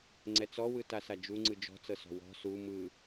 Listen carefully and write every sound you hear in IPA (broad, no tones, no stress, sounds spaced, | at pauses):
ŋ͡ǀ ɛ t͡s ɔ w ɯ t a s a d͡ʒ u ŋ͡ǀ ɯ d͡ʒ ɔ̤ t͡s ɤ s ɔ̤ w ɔ̤ s u m ɯ